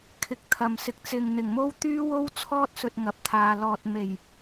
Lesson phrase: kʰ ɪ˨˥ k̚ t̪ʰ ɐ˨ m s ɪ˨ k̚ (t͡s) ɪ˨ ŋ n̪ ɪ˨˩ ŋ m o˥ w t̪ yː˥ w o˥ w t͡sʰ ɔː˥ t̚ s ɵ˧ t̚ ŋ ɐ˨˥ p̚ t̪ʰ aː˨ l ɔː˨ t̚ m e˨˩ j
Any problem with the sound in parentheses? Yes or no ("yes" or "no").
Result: no